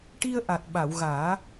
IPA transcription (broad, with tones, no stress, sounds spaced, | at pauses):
ʈ i˧ ə̯ ʔ a˨˩ t̚ ɓ a˨˩˨ w ɣ aː˨˩˦